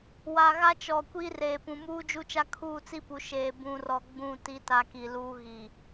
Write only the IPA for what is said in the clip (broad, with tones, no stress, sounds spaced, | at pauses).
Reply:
w a˨ ɣ a˦ t͡ʃ ɔ˨ kʷ iː˦ r eː˨ p ũ˨ m uː˦ d͡ʒ u˦ t͡ʃ a˦ kʰ uː˦˨ t͡s i˦ p u˨ ʃ eː˨ b ũ˨ r ɔ˨ ɡ͡b ũ˦˨ t i˦ t a˦ k i˨ l uː˦ ɣ i˨